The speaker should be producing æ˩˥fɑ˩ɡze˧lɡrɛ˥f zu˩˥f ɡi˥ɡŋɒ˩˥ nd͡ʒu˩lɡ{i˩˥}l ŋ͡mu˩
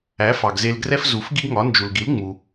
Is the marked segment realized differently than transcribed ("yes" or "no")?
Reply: no